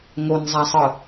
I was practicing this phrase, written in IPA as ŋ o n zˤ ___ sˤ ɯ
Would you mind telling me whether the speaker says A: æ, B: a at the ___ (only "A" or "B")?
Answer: B